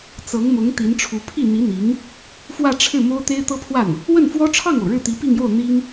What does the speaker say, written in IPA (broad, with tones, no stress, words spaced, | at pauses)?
t͡sɤ˧˥ŋmʊ˧˥ŋ t̪i˧˥nʈ͡ʂʰu˧˥ pʰi˥˩n̪i˧˥n̪i˧˥ŋ | fwä˥˧ʈ͡ʂʰɻ̩˥˩ mo˥ʊ̯t̪e˥ɪ̯t̪ɤ˥pʰwa˥˩n | wə˥˩nfwɔ˥ʈ͡ʂʰɑ˥˩ŋo˩ʊ̯ ɻɻ̩˥˩t̪i˧˥pi˥˧ŋjo˥˩ʊ̯ n̪i˥ŋ